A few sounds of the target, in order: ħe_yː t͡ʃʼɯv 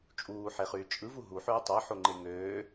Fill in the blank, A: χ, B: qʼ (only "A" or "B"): A